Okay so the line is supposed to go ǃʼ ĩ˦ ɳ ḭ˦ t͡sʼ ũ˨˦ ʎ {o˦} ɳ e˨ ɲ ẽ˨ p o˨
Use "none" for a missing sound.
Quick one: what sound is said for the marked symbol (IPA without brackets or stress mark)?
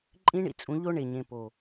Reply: o˦